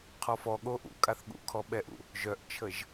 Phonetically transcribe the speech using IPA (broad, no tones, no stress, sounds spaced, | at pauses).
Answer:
qʰ ɔ f ɔ ɠ o ʔ ṵ kʼ a θ ɠ ṵ kʰ ɔ ɓ ɛ ʔ ṵ | ʒ œ ʔ t͡ʃʰ ə ʒ